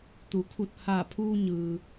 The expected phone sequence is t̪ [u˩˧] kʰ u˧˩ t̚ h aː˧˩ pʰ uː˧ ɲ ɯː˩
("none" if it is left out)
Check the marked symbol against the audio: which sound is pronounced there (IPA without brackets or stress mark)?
u˩˧